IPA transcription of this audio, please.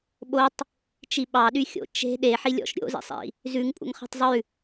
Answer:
ɓ o tˤ | t͡ʃ i ɓ ɑ ɗ y xʲ o̰ t͡ʃ e̤ ɗ e ħ i lʲ ɔ̰ ʃ ɾʲ o̰ z ḭ sˤ ḭ | z ʉ ŋ pʼ ṵ ŋ χ e̤ tˤ zˤ ʉ

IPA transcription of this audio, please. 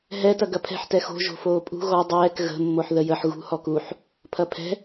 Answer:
ɦ ɛ t ɐ ɡ ɐ pʰ ɛ̤ ħ t ɛ x o̤ ʒ o̤ f oː pʼ ṳ ɣ ɔ dˤ ɛː k ɣ ə̤ mː o ħ ð ə j ə ħ ɣ ṳ h ɔ k u ħ | pʰ ɐ pʰ ɛ̤

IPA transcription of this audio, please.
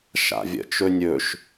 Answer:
ʃ a̰ vʲ ə̰ t͡ʃ ɵ nʲ ɵ ʃ

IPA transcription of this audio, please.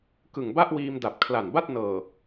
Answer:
k ɯ˨˩ ŋ b a˥˩ ʔ w iː˧ m d a˨˩ p̚ kʰ l a˨˩ n b a˥˩ t̚ n ɤː˨˩

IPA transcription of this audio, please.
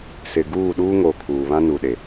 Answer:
s ɪ˨ ɡ uː˦˨ ɗ uː˦ ŋ o˨ kʰ uː˨ β ã˦ n u˨ ɗ e˨

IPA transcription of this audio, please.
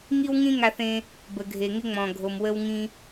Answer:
ŋ i˥ w ŋ ĩ˥ ŋ a˧ θ ẽ˧ | b ə˩ ɡʱ e˩ ŋ ɪ˧ ŋ͡m ɔ̃˩ ɡʱ o˩ m w ə˧ w ŋ ĩ˧

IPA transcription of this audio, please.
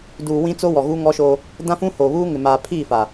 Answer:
d uː˨ w ĩ˦ t͡s o˦ w ɔ˨ ɣ uː˦ ŋ ɔ˦ ʃ o˦ | d ã˦ f ũ˦ h oː˨ β uː˦ ŋ ɪ˨ m aː˨ pʰ iː˦˨ f a˨

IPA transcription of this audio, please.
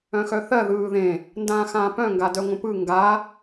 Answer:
œ̃ x œ θ ɜ ð ɯː ð ẽ | n d ãː x ãː p œ̃ ŋ ɡ a d œ ŋʷ ə̃ p ɯ ŋ ɡ a

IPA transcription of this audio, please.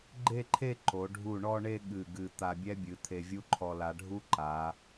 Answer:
ɡ͡ǃ e˥˧ ǃʰ e˥˧ ǃ o˩˧ ɖʱ u˧˩ ɳ ɔ˧ ɳ e˧ ɠ ɨ˧˩ ɡ ɨ˧˩ t̪ a˧ bʲ ɛ˥ bʲ ɨ˩˧ t̪ʰ e˧ vʲ u˥ ǃʰ ɔ˧ l a˩˧ ɖʱ u˥ ǃ a˩˧

